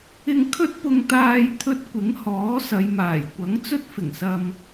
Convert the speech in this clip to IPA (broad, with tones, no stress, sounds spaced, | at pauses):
ɪ˧ ŋ kʰ ɵ˥ t̚ p ʊ˧ ŋ t̪ aː˧ j t̪ʰ ɵ˧ t̚ kʷ ɪ˨˥ ŋ h ɔː˨˥ s ɐ˨˧ j m aː˨˩ j kʷ ɐ˨˥ ŋ t͡s ɵ˥ t̚ f ɪ˨˩ ŋ s ɐ˧ m